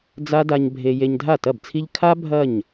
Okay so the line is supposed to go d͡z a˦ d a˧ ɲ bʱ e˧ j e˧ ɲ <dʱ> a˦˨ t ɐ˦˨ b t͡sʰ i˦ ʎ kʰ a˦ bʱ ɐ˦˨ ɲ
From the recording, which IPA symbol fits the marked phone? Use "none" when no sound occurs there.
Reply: dʱ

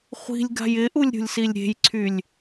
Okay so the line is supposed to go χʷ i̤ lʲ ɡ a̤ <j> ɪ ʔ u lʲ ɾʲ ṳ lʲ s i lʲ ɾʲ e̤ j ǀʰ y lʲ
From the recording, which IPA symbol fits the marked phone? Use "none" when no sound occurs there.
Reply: j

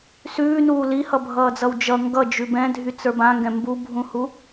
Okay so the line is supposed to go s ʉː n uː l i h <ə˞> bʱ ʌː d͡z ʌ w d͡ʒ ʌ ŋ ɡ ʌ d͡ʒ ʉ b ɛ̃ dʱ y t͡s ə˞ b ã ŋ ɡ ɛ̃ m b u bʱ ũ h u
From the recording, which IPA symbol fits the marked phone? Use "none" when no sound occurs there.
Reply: ʌ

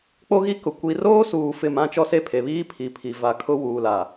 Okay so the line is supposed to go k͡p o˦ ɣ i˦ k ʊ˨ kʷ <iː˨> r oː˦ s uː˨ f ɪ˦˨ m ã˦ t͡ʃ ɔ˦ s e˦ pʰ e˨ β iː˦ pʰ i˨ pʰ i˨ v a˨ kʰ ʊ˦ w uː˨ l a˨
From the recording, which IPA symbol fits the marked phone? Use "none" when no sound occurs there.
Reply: i˨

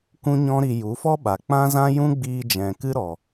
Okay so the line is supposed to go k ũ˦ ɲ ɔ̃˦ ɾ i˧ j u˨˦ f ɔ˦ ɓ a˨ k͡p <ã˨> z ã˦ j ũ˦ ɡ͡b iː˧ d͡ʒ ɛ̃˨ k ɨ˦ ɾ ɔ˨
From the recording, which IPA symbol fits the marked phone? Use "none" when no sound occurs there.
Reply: ã˦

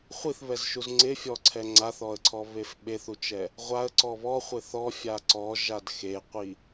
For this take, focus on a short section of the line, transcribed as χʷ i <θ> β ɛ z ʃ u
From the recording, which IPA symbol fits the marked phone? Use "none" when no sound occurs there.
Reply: θ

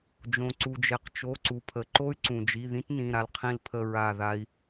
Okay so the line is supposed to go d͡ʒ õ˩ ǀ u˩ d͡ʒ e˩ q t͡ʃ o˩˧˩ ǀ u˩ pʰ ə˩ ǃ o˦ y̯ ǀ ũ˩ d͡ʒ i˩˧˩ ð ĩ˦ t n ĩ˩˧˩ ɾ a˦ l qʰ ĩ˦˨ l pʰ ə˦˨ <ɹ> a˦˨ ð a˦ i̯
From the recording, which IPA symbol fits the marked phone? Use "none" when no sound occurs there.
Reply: ɹ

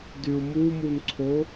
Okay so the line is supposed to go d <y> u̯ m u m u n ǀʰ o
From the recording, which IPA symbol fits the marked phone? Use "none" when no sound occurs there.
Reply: y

